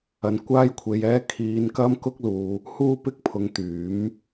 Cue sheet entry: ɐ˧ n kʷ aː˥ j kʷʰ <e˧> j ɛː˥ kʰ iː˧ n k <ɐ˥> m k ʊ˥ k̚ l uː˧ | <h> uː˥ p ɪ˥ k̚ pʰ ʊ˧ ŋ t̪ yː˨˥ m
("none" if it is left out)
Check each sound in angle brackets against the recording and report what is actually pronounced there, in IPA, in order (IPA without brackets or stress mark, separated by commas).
e˧, ɐ˥, h